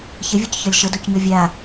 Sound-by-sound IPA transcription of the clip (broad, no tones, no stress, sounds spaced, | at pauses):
ç ə vʲ ɒ c ç ɒ lʲ ʃ ə d o c ɲ ɔ vʲ a